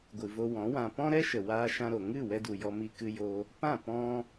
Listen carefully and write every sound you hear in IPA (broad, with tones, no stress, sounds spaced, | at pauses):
ɡʷ ɨ˨ v o˧ w ɔ̃˨˦ w ã˧ p ɔ̃˦ ɾ ɛ˦ ʃ ə˨ w aː˧ ʃ ã˧ ɾ o˨ ŋ ɨ˦˨ w ɛ˧ d u˨ j ɔ˧ m i˧ k ɨ˦ j o˦ | p ã˦˨ p ɔ̃˧